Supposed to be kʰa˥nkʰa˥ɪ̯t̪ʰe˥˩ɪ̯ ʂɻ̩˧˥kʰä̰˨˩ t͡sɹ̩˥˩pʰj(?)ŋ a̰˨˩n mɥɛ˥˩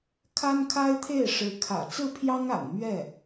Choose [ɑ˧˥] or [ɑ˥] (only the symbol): ɑ˥